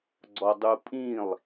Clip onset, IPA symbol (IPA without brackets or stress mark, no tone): ɡ͡ǀ